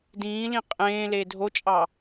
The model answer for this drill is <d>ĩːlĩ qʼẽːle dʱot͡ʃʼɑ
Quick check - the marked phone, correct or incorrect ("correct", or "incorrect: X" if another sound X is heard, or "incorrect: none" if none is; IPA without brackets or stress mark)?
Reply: correct